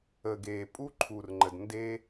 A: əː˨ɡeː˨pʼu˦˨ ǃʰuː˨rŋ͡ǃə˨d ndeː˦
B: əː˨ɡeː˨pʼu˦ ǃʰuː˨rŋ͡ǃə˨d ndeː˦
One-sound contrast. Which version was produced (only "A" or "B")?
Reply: B